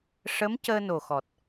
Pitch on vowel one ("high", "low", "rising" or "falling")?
rising